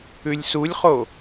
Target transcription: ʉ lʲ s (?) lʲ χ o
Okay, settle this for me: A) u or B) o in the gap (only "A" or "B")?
A